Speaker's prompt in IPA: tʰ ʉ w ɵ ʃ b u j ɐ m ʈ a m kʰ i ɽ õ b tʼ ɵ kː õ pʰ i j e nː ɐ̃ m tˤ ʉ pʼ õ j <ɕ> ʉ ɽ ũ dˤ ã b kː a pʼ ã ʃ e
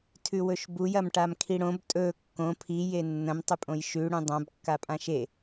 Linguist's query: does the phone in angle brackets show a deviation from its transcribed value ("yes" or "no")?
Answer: yes